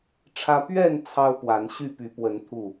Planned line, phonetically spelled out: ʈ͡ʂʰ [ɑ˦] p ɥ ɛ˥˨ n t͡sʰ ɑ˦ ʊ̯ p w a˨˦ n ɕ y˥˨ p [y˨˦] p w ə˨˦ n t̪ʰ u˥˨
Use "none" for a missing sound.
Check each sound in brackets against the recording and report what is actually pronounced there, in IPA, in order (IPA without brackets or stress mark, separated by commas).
ä˦, y˨˦